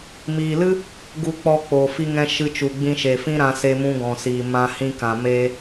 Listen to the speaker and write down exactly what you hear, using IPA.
m iː˨ l ɨ˦ | ɡ u˨ k͡p ɔ˨ k͡p oː˨ f i˦ ŋ ɛ̃˦ ʃ ɨ˧ t͡ʃ u˨ ɡ͡b ĩ˧ ʃ e˨ f ĩ˦ ɾ ã˧ s e˧ m ũ˧ ɡ ɔ̃˨ s iː˨ m ã˧ h ĩ˧ k ã˨ m eː˦

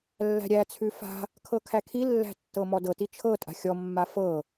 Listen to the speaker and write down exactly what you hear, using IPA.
lː æ̤ ɾʲ æ t͡sʰ ʉ f a̤ | kʰ ɤ kʰ æ kʰ i lː æ̤ tː ɤ m ɔ d ɤ t i t͡ʃʰ ɤ tʼ a̤ xʲ ɔ mː a f ɤ

